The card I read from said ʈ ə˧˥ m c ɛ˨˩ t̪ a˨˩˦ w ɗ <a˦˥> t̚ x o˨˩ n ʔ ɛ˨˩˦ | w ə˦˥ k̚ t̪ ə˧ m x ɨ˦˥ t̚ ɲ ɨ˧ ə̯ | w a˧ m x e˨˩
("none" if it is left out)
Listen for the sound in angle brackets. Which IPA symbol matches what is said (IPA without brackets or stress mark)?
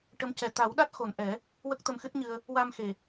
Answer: a˦˥